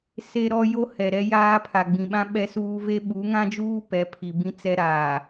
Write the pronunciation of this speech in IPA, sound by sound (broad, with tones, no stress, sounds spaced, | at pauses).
s e˦ ɾ ɔ˦ j o˦ h ɛ˨ ɾ ɛ˦ j aː˦ pʰ a˨ ɡ͡b ĩ˨ ɓ ã˦ ɓ ɛ˦ s uː˦ v e˦ ɓ u˨˦ ŋ ã˦ d͡ʒ uː˦ p ɛ˨˦ pʰ i˨ b ĩ˦ t͡s ɛ˦ ɾ aː˨